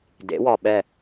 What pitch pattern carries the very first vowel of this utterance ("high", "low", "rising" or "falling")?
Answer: rising